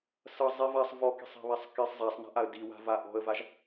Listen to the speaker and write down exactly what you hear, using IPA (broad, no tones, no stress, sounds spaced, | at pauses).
s ʌ zˤ i v a sˤ v ɔ k i̤ sˤ æ̤ β æ sˤ k i sˤ zˤ æ sˤ n a̤ ʔ a ə̯ d i w a̤ v a ʔ ɔ̤ ə̯ v a ʒ